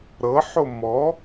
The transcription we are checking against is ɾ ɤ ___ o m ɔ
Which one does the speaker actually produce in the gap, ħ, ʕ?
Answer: ħ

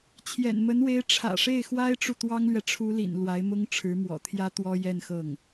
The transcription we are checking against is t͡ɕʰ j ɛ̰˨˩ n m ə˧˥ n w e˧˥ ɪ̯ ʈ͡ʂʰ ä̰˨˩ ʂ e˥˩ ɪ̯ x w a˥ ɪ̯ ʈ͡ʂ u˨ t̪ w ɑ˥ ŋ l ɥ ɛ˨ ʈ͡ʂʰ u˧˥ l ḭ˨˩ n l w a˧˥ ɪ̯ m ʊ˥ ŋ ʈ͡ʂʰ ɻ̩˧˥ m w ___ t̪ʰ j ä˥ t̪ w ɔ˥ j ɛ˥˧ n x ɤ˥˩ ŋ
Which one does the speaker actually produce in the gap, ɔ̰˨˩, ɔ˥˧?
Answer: ɔ̰˨˩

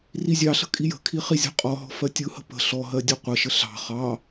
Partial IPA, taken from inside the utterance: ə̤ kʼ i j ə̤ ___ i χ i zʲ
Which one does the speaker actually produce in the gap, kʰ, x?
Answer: kʰ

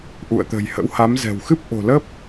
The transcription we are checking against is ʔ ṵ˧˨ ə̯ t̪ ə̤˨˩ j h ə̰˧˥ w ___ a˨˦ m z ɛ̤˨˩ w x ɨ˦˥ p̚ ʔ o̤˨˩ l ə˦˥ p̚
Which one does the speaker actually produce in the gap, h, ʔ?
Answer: h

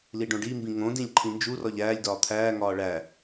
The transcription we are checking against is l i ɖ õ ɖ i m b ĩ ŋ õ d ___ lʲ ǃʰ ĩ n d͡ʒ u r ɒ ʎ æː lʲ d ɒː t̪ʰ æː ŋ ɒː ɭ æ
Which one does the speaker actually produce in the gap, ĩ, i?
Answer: ĩ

